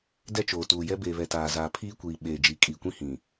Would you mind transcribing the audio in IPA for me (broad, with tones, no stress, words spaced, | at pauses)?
dɛ˦t͡ʃoː˨tuː˨jɛ˦ beː˨βɛ˨ taː˨zaː˨ pʰiː˦kʷiː˨ ɓeː˨ d͡ʒi˨˦kʼiː˨kʷĩ˦hĩ˨